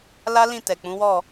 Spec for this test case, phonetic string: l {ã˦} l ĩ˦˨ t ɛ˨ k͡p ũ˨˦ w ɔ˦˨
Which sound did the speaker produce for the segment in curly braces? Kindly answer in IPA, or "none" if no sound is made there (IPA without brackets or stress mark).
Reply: a˦